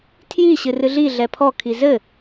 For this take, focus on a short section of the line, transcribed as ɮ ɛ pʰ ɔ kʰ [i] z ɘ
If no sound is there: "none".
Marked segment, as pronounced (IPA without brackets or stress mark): i